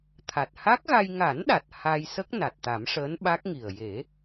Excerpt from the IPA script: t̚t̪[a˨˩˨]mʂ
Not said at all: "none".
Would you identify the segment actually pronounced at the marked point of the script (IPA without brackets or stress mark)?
a˨˩˦